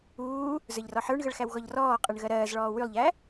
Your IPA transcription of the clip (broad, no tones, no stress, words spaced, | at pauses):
uː | zə˞ʎrɔħə˞ɳɣəɭ xæwɣɔʎrɔː qʼəɳ ɣɜɾɜːzɭɔː wylˠʎæ